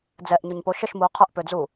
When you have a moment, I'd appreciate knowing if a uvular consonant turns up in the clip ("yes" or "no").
yes